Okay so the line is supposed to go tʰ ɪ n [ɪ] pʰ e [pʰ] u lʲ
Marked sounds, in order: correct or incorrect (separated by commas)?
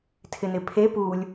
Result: correct, incorrect